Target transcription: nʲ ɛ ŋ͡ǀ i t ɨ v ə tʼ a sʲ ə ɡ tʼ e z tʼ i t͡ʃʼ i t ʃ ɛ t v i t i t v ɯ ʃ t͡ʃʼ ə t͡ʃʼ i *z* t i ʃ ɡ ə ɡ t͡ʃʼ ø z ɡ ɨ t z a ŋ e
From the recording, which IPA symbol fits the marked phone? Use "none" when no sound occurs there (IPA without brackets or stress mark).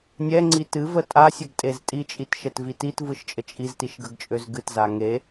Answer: z